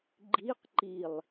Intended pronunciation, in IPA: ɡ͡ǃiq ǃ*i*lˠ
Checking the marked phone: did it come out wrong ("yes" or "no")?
no